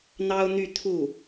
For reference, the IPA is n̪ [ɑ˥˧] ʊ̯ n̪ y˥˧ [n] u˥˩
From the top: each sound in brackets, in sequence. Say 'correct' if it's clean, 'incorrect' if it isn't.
incorrect, incorrect

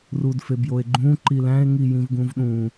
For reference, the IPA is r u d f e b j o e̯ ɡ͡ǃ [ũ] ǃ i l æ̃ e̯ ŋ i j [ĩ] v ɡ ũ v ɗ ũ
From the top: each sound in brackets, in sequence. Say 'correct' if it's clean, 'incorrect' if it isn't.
correct, correct

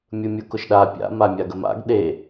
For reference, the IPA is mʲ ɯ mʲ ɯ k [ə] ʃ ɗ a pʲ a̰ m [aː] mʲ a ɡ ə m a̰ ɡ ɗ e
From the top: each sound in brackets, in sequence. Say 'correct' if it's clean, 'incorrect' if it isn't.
incorrect, incorrect

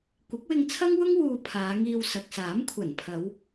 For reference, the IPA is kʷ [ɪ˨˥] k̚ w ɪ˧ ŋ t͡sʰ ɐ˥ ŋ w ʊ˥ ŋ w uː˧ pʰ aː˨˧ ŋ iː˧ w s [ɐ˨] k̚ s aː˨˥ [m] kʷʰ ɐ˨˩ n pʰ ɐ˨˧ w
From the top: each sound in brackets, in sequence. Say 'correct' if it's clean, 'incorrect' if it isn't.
correct, correct, correct

